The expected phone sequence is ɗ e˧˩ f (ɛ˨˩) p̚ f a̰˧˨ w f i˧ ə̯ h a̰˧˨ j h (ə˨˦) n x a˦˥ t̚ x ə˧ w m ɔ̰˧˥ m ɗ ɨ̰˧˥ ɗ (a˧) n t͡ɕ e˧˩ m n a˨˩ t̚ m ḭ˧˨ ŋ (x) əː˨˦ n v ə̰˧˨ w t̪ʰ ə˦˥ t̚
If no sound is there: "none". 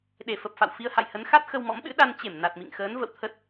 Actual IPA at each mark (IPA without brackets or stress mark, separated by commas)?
ə˨˩, ə˨˦, a˧, x